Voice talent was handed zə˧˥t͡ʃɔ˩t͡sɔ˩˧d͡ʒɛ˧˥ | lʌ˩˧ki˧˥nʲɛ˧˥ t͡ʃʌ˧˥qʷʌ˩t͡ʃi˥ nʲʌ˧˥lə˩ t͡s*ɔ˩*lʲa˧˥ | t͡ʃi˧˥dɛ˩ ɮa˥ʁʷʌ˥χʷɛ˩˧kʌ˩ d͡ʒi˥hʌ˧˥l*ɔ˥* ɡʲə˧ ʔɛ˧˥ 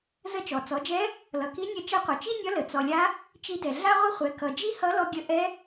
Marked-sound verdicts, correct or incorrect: correct, incorrect: ɔ˧

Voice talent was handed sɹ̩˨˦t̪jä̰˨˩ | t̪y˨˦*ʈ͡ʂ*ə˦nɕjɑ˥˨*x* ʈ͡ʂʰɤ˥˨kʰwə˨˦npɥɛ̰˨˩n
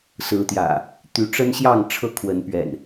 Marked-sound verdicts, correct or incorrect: correct, incorrect: ŋ

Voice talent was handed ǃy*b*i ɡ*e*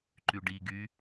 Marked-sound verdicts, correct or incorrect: incorrect: ɖ, incorrect: y

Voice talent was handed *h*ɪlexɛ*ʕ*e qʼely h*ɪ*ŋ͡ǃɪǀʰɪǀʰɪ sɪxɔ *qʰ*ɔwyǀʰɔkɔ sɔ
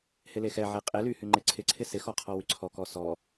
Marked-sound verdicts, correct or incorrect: correct, correct, incorrect: y, correct

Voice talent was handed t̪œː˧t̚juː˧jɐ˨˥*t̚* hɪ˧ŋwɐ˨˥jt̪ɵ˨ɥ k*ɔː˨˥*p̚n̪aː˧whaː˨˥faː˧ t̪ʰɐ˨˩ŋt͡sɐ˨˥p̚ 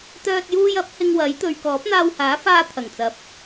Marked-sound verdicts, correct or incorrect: incorrect: p̚, correct

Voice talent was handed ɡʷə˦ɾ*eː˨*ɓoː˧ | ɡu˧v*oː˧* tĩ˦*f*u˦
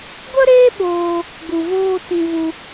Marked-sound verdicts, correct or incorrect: incorrect: eː˦, incorrect: oː˦, incorrect: v

